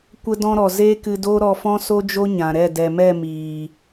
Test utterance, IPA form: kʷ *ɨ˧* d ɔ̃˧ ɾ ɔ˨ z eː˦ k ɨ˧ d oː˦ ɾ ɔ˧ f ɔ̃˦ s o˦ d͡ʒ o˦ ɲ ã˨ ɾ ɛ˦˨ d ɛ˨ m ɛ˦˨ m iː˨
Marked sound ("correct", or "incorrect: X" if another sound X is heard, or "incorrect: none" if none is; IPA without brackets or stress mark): incorrect: ə˧